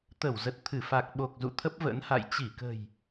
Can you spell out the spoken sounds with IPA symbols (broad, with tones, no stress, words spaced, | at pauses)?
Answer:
t̪ə˧˩wzə˨˩t̚t̪ʰɨ˧˩ fa˨˩k̚ɓo˨˩k̚ zṵ˧˨t̪ʰə˦˥p̚və̰˧˥nha̰˧˨j t͡ɕi˧˩kə̤˨˩j